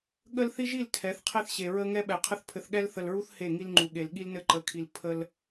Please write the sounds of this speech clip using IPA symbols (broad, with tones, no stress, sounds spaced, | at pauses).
ɠ ə˦ l θ i˦ ʒ i˦˨ l tʰ ɛ˨˦ θ qʰ e˦ θ ɕ e˨ ɹ ə˦ ŋ ɛ˦ ɓ ɛ˨ qʰ ɘ˦ θ pʰ ɘ˨ θ ɠ ɛ˦ l θ ə˨ l ɹ u˦ θ h e˦˨ ŋ i˦ l ŋ͡ǃ u˨ ɠ e˨ l ɠ i˦ l n ɘ˦ ǃ ə˨˦ kʰ i˨ l pʰ ə˦ l